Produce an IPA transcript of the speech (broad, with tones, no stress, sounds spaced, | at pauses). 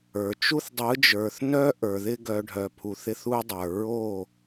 ə˞˨ t͡ʃ u˦ θ dˤ ɯ˨˦ d͡ʒ ə˞˨ θ n œ˦ ʔ ə˞˨ ð ɪ˦ ɡ œ˨ ɖʱ œ˨ pʰ u˨ θ ɪ˦ θ u˦ dˤ ə˞˨ ɹ o˦˨